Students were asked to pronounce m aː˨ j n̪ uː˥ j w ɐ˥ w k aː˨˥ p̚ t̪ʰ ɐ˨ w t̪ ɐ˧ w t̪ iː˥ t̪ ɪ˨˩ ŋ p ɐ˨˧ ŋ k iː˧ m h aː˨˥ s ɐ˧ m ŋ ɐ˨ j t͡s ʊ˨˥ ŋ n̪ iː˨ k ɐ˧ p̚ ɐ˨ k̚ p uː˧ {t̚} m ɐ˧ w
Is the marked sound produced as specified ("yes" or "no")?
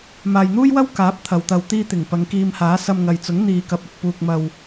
no